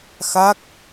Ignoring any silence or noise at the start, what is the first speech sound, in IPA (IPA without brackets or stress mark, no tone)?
x